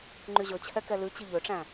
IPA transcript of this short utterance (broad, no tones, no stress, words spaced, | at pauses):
ŋ͡ǃyʑɵt͡ɕʰɛ kɛlʉt͡ɕi ʎøʈ͡ʂæ̃